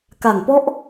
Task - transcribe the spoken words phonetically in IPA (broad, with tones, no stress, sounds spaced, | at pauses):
k a˨˩ ŋ p ɔ˦˥ ʔ